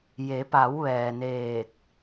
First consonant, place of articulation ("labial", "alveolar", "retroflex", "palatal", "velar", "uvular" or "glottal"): palatal